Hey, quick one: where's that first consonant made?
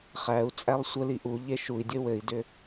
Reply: uvula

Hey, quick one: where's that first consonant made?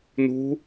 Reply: tongue tip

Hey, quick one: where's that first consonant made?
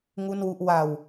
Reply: velum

